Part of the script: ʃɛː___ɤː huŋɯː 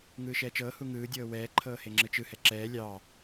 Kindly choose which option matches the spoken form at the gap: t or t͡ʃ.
t͡ʃ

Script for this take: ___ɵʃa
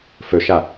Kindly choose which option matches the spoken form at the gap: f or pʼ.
f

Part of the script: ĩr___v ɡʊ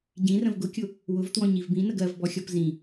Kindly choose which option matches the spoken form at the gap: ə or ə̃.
ə̃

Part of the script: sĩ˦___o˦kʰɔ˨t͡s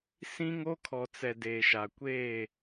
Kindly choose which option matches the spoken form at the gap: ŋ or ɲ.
ŋ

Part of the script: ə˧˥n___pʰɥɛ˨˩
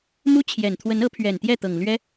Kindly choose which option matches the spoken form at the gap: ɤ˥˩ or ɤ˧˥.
ɤ˧˥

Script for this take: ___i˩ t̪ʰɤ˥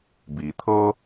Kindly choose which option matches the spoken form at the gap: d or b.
b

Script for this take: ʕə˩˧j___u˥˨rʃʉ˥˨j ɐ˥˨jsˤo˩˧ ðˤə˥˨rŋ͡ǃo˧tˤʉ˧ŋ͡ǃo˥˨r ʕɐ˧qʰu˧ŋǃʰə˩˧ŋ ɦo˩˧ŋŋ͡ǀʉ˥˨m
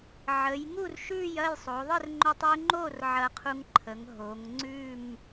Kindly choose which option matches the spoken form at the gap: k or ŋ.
ŋ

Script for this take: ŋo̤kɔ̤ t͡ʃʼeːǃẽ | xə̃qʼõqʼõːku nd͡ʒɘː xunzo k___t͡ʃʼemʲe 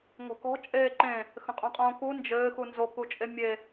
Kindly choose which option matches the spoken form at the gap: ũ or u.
u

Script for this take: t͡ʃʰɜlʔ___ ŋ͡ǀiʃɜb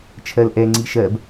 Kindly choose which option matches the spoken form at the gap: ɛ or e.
ɛ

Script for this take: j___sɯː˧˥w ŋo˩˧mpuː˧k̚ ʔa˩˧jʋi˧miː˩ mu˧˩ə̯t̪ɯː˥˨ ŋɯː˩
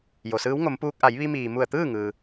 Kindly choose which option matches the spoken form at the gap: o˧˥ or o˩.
o˩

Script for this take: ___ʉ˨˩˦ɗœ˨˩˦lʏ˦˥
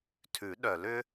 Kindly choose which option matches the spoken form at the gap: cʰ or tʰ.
tʰ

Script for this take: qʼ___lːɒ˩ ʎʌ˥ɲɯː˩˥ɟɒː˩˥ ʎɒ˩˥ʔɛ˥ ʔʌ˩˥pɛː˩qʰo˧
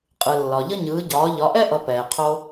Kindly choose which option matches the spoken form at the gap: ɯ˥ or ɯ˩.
ɯ˩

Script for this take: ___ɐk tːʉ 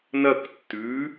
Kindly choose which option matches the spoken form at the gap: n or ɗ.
n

